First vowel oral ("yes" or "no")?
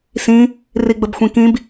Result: no